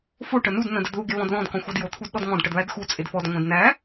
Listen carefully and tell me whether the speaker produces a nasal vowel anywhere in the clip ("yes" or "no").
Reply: yes